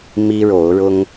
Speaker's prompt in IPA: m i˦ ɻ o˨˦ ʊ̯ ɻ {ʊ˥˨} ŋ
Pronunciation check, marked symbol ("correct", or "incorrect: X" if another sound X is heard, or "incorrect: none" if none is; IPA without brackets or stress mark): incorrect: ʊ˦